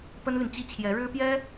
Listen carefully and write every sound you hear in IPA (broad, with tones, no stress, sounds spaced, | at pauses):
p ə˥ n l y˨ n t͡ɕ i˥ t͡ɕʰ j ɛ˧˥ ɻ ɻ̩˥ p j ɛ˥